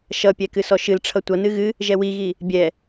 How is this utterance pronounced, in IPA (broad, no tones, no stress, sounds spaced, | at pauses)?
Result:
ʃ ʌ pʲ ɛ k ɨ s ɔ ʃ ɨ l ʈ͡ʂʰ ʌ tʷ ʌ n ɨ ɣ ɨ | ʒ ɛ w i ɣ i | bʲ ɛ